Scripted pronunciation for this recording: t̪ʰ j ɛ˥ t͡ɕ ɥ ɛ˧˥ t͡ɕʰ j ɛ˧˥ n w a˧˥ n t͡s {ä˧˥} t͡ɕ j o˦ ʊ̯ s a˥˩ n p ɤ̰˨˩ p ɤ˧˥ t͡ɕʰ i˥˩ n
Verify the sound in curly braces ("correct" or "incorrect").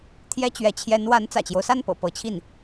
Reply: incorrect